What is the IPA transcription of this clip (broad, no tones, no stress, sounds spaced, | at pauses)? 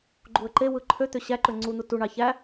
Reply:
ɡ͡ǃ u ə̯ ǃ e w ɯ ǃʰ ø t̪ ø ɕ æ ǃ ø ŋ͡ǀ u n̪ u t u ɳ ɑ ç æ